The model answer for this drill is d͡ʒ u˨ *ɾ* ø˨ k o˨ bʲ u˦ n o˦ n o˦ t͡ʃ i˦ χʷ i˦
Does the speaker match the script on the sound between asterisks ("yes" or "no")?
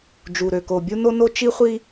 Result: yes